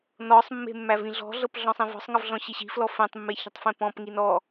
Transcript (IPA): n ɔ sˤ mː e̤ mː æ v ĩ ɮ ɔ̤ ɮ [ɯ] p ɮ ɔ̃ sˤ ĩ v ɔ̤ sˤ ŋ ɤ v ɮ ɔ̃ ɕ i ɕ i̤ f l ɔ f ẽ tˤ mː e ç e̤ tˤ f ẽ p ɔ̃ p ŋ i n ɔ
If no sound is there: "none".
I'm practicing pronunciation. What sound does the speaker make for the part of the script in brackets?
ɤ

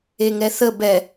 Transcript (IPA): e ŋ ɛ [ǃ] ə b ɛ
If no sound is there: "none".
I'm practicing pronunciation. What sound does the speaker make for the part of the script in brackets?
θ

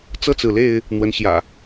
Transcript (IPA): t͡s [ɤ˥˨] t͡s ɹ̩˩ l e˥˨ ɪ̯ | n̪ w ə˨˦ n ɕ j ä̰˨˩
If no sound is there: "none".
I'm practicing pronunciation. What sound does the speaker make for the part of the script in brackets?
ɤ˥˨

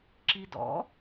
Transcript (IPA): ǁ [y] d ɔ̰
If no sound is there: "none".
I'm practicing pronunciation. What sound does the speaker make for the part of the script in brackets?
i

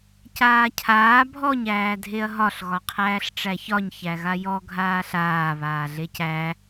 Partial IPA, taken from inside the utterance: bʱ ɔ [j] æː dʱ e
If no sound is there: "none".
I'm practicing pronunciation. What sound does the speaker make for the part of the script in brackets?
ɲ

